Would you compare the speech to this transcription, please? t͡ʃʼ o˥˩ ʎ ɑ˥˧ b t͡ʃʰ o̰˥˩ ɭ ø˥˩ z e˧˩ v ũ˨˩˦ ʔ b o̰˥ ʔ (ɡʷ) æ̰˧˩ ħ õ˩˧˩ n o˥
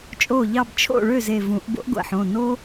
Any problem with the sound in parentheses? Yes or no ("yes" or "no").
no